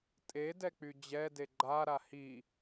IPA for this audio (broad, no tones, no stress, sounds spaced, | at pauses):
tʼ e d ɛ k͡p y d͡ʑ ɛ d e ɡ͡ǃ a ɾ a h i